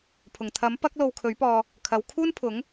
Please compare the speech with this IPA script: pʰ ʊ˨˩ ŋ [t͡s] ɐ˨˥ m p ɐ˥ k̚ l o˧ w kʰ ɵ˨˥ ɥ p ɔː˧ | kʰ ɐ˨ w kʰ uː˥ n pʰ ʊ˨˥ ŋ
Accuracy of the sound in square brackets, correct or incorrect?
incorrect